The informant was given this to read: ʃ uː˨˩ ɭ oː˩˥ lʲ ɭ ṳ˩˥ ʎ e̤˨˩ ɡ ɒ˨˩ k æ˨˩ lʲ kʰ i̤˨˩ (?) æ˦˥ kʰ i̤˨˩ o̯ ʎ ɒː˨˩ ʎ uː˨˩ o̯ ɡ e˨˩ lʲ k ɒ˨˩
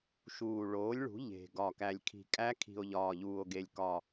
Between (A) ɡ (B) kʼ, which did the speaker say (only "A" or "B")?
B